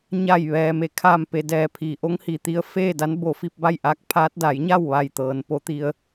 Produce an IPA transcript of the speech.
ɲ a˧˩ j ʋ ɛː˩ m e˩˧ kʰ aː˧˩ m p e˩ d ɛː˧˩ pʰ iː˩ ʔ o˧˥ ŋ h iː˩ t̪ i˧˥ ə̯ f eː˥˨ d a˧˥ n b o˧˩ f i˥˨ p̚ b a˥˨ j ʔ aː˧˥ k̚ pʰ aː˧˥ t̚ d a˩˧ j ɲ a˥˨ w ʋ a˧˩ j t̪ ɤː˩ n p o˧ t̪ i˧ ə̯

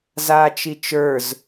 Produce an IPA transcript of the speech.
z aː t͡ʃ i t͡ʃ ə˞ z

